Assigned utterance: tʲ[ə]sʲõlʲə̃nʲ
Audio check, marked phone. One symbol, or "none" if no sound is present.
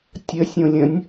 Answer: ə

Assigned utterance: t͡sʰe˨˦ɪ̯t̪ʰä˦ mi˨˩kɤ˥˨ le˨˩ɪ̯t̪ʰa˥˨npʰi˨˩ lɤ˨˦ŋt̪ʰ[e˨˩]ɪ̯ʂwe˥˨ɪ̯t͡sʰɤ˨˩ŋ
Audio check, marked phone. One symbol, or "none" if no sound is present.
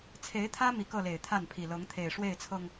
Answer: e˨˩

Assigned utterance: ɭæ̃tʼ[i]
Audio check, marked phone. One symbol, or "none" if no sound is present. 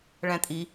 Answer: i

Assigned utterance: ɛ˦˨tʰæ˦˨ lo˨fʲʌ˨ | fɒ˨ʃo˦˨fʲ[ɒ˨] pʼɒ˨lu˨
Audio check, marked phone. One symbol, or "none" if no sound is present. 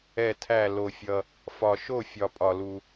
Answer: ɒ˨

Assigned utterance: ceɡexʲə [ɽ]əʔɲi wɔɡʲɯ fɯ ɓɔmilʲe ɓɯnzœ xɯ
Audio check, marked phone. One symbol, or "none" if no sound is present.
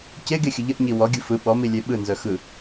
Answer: ʎ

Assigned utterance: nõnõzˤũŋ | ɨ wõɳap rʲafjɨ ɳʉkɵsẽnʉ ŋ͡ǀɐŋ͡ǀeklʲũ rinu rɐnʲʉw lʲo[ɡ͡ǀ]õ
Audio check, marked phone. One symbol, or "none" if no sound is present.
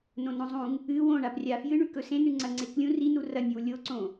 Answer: ǀ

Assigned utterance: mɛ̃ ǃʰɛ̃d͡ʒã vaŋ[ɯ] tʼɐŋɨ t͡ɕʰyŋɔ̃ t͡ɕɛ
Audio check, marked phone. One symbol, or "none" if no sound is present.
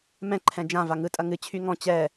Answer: ɯ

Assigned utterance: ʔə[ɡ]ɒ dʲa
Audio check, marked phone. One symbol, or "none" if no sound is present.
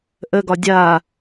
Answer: ɡ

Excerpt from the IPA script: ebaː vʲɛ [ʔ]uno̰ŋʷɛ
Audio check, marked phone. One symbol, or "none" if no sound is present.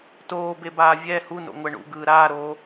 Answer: h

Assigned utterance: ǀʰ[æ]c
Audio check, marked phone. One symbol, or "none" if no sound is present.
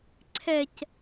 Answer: ɛ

